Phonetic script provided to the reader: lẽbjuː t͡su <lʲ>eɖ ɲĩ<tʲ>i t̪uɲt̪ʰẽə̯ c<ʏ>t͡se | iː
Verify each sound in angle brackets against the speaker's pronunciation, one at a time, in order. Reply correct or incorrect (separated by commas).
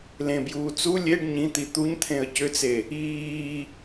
correct, incorrect, correct